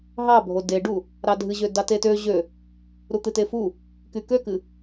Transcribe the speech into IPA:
ɦɑbʱo deɖu | ɾɑdʱɨʑø dɑtetø ʑø | ɾut̪ɨtefu | kykøkɨ

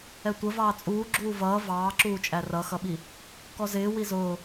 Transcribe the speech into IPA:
ɛtʷə vɑːt͡sʼuː ɡ͡ǁuːvʌː vɑːǁuːt͡ʃʼæ rʌxʌɓi | kɔzɪː wizʊː

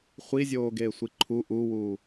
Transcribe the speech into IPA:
χʷizʲoːɡeːsʷi ǃʰu ʔuwuː

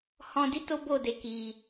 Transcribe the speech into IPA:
hɔ̃˧di˦ to˦bo˦˨de˧ ki˧

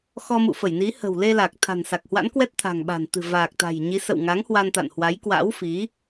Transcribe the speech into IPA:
xɔ˧mṵ˧˨fə˧˩jni˨˦ hə̤˨˩wle˧la˨˩k̚ t̪ʰa̤˨˩nsa˨˩k̚hwa̰˧˥nkwɛ˦˥t̚ t̪ʰa̤˨˩ŋɓa̤˨˩nt̪ɨ̤˨˩ vaː˨˩k̚t̪a̤˨˩jɲi˨˦ sə̰˧˨wŋa˨˦ŋ hwa˧nt̪a̰˧˨nhwa˨˦j kwa̰˧˥wfi˨˦

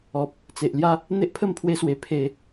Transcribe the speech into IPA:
ɔ˨p̚ | t͡se˨ʔlja˦ | n̪e˦ʔpʰə˥˧mpʰwe˧swe˨˩ pʰe˨˩

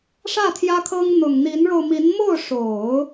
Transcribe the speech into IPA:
ʂä˥˩t̪ʰjä˥kʰɤ˥ŋ n̪ʊ˨˩ŋn̪i˧˥nɻo˧ʊ̯ mi˧˥n mo˥˩ʊ̯ʂo˨˩˦ʊ̯

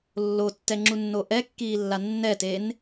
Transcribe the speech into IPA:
lːotːɛŋ͡ǁunːo ʔɛkːiːlːa nːɛten

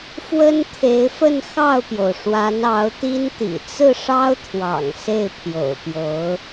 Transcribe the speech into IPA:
fwə˥nt̪ʰe˧˥ɪ̯fə˥˧n xɑ˥˩ʊ̯pjo˩ʊ̯ʂwa˧˥n ɑ˧˥ʊ̯t̪i˥nt̪ḭ˨˩ t͡sɹ̩˥˩ʂɑ˥ʊ̯t̪ʰwɑ̰˨˩ŋ se˥˩ɪ̯pʰjo̰˨˩ʊ̯pjo˧˥ʊ̯

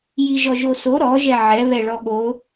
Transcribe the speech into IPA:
jiʒɔʒoso ɾɔʒɛ ʕɛ βɛɭɔɠo

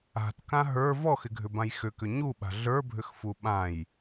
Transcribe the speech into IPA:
a̤tkã ɦə˞ vɔxɪɡʱʏbãj xʏkʏ ɲuɓa̤ ɮə˞bʱʏxfu ɓãj

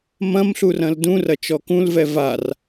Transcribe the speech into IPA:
mɐ̃m ɬurɐ̃ldũ rɐt͡ʃɔkũlvɛ var

